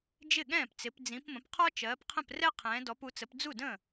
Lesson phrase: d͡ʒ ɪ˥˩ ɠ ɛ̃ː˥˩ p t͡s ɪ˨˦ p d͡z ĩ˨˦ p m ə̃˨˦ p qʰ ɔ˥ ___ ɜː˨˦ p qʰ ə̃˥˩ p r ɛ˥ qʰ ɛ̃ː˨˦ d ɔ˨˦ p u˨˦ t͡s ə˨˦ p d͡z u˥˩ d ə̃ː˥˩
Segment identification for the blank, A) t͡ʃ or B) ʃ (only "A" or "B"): A